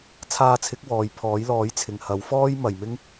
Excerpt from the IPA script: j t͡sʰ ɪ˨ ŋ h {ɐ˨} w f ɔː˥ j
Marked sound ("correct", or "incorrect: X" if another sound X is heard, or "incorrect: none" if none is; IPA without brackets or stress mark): incorrect: ɐ˨˥